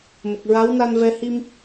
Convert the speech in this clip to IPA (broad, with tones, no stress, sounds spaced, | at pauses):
m ə˨˩ k̚ ɹ a˧˥ w n a˧ n v ɛ˧ h i˧ m